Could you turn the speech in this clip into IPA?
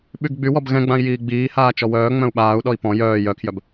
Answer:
ɓyɡɡ͡bywɔb ɣɛ̃ɡ͡bãi̯ jiːɡ͡biːhaː t͡ʃɔwœːŋ͡mœ̃u̯ ɓaːu̯ɗɔi̯ pɔ̃ jœː jœkʰjœb

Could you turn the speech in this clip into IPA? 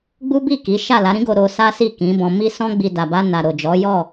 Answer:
ɡ͡bu˦ bi˦˨ ki˨˦ ʃa˦˨la˨˦ɾĩ˦ɡo˧ ɾo˧sa˦si˦˨ kĩ˨˦bɔ̃˧mi˦ sɔ̃˦ɡ͡bi˧ da˨ba˧na˨ ɾo˨d͡ʒɔ˨˦jɔ˦˨

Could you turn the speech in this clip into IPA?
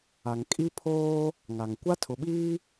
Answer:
a˨ŋkʼi˦pʰoː˦ | ŋa˨ŋ kʷa˦tʰʊ˨ɓiː˦

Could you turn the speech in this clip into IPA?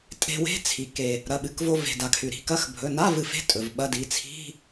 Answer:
tʼe̤˧we̤˧˥˧ t͡sʰi˩ke˩ | ɾɐ˩˧˩ɓɨ˩˧˩kvo˧ ve̤˩ da˩kʰʉ˩ ɾi̤˩˧˩ kɐ˧˥˧xbʱɵ˩˧˩ na˧˥˧v ɨ˩fe̤˧˥˧ tʼɵ˩vɓɐ˧˥˧di˩˧˩ t͡sʰi̤˧˥˧

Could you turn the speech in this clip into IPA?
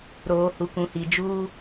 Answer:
ɾoː˨ hu˨kũ˨hi˨ d͡ʒuː˦

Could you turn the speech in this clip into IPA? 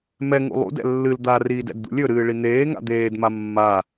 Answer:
mɛŋṵ lˠṵdɛ̰ lːɨl d̪ariːd ɛ̰dd̪ṵlʲɵɾɨː ɭin̪eːŋa̰ d̪eːdma mːa

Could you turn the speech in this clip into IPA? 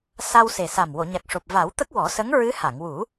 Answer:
sa˧wse˨˩sa˨˩m wo˨˩˨ɲa˨˩k̚ʂo˨˩p̚ va˨˩˦w t̪ə˦˥k̚wɔ˨˩˦sə˧˥ŋ ɹɨ˧˥ ha˨˩˨ŋwu˨˩˦

